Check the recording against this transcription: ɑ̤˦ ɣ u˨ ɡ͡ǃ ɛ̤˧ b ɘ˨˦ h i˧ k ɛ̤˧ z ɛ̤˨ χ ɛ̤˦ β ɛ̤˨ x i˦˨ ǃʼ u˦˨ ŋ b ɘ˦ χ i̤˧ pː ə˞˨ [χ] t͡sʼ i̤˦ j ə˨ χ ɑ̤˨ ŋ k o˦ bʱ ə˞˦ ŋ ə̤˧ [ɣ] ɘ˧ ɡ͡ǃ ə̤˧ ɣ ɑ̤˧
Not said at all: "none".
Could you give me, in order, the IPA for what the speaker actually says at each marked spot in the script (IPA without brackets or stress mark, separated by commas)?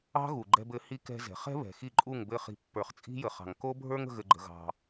χ, ɣ